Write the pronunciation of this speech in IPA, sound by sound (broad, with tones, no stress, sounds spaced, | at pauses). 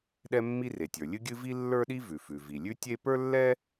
ɗ ɛ˥ mː i˥ r e˩ tʲ ə˞˩ lʲ ɨ˥ ɡʲ ɨ˥ v i˥ lː ə˞˥ ɗ i˥ v ʉ˩ f ʉ˩ v i˩ lʲ ʉ˥ tʲ e˥ p ə˞˥ lː ɛ˥